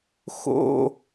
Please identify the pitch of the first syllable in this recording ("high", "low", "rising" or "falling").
falling